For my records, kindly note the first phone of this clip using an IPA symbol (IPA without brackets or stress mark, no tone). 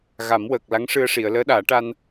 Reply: ɣ